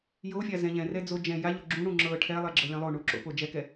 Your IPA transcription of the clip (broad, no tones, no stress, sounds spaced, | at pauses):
j o fʲ a z ɛ̃ ʎ ɛ̃ r ɛ d͡z o d͡ʒ ɛ̃ j a ʎ o ɡ͡ǁ ũ ɽ ũ ŋ͡ǁ ɤ ʈʰ ɛ lˠ ɛ ɡ͡ǁ ɤ lʲ ɛ̃ lˠ o ɳ u ǁ o̰ p o d͡ʒ ɛ k ɛ